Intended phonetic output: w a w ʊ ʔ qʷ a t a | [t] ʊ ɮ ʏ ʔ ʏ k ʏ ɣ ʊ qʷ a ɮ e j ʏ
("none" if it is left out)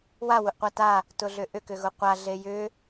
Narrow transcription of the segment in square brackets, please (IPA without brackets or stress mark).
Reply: t